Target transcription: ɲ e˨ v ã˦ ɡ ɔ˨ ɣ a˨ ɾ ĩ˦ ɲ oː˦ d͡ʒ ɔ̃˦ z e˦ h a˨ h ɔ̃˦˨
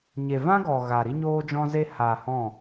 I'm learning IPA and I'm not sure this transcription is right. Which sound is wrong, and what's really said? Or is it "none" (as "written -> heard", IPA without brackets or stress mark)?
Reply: ĩ˦ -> i˦